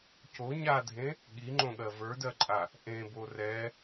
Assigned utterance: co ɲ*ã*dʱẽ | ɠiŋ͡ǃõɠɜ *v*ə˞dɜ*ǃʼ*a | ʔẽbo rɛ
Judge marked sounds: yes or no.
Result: no, yes, yes

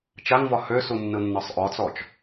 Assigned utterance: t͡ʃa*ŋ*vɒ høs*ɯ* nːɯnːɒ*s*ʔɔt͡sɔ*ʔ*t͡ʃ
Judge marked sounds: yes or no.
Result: yes, no, no, no

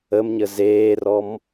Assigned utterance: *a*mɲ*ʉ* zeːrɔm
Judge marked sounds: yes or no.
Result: no, no

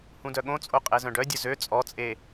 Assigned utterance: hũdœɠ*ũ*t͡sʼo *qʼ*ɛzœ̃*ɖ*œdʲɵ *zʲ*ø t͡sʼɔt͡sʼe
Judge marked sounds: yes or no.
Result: no, yes, yes, no

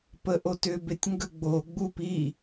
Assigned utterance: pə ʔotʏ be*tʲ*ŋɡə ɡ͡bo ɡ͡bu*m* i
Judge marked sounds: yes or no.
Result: yes, no

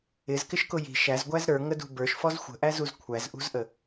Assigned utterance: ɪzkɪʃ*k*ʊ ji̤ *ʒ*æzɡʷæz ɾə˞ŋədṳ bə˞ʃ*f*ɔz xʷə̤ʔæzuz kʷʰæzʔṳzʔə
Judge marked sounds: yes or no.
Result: yes, no, yes

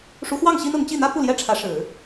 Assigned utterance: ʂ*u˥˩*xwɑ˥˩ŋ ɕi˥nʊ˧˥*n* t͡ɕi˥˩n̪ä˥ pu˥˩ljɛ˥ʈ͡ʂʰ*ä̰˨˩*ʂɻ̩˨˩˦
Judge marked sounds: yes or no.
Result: no, no, no

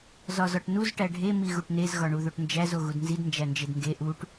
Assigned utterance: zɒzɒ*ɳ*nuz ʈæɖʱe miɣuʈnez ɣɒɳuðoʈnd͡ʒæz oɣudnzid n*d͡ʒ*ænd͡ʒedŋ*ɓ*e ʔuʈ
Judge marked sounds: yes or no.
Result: no, yes, no

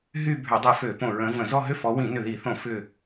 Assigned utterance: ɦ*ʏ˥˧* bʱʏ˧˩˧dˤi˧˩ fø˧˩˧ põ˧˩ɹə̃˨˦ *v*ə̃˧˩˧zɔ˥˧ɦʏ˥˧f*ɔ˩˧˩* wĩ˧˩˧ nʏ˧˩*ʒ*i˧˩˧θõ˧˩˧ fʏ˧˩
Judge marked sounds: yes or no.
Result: no, yes, no, no

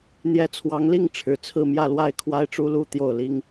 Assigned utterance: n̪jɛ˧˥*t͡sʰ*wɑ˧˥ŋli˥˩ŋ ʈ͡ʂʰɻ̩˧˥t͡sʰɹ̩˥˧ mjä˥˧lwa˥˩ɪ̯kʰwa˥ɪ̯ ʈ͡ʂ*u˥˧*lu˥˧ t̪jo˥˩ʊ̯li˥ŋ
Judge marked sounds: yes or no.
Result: yes, no

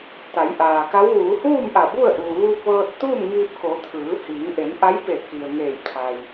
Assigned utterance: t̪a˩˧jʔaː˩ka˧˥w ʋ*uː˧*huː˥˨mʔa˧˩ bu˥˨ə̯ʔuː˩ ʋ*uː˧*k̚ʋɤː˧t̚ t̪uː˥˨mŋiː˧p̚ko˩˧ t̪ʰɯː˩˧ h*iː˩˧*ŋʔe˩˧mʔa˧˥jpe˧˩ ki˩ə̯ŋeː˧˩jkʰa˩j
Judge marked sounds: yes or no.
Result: no, yes, yes

